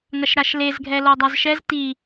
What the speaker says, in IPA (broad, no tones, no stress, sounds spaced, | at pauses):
ŋ ɐ ʃ ɾ a ʃ l e z ɡʱ ɛ l o dˤ a z ʃ ɛ z t i